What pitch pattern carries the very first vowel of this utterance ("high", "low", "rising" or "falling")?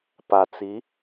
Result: low